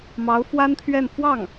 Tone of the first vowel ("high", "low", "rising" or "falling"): rising